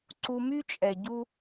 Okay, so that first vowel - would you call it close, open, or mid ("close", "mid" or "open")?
close